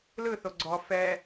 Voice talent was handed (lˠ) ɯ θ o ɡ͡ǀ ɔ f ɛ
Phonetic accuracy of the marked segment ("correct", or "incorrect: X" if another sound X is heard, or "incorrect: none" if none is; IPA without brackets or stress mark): incorrect: l